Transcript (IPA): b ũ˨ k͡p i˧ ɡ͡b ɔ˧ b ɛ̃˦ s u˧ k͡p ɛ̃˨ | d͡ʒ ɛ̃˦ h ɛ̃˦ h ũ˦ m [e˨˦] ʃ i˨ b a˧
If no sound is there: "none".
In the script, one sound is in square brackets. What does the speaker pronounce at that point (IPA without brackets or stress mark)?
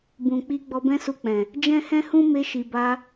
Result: e˧